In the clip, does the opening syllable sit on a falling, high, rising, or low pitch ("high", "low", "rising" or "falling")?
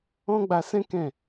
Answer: high